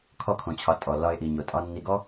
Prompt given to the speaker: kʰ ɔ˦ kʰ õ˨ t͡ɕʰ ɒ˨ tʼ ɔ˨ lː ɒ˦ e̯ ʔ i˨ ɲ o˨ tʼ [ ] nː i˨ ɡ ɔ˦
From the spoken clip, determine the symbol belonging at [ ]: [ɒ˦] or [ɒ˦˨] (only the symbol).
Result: ɒ˦